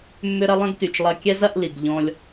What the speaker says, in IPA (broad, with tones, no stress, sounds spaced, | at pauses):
mː ʏ˥ ɾ ɐ˥ lˠ ɐ̃˥ ɡ t y˩ t͡ʃ lˠ ɐ˧ kʲ ɛ˥ z ɐ˥ ʔ l i˩ ɡ ʎ ɔ̃˧ lʲ